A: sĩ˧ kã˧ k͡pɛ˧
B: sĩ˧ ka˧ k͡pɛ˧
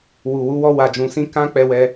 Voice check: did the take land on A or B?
A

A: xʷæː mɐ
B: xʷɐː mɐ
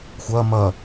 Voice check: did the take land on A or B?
B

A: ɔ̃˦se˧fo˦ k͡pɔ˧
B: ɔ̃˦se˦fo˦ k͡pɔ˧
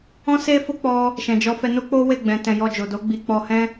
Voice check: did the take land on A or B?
B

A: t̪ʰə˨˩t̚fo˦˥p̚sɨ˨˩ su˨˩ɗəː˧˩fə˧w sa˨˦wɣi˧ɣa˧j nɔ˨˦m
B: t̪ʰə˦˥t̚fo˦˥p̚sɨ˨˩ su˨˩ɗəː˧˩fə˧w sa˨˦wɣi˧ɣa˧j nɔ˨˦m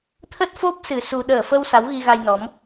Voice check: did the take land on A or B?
B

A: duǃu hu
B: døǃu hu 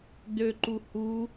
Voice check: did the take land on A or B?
B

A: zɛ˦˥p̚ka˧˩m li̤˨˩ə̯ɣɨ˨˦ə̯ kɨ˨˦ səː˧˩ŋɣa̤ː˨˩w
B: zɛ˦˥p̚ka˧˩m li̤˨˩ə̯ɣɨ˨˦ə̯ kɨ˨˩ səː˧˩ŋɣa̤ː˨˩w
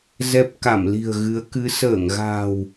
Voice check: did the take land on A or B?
A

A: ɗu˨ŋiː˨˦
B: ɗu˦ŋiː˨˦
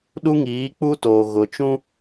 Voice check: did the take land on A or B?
B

